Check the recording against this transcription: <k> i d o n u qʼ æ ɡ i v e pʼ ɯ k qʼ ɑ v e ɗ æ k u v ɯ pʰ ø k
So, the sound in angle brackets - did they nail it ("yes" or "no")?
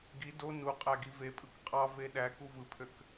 no